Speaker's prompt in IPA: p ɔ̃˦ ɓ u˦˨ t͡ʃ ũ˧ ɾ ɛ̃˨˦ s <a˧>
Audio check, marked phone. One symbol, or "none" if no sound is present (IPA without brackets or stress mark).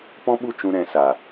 a˨